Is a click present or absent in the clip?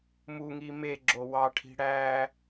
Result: present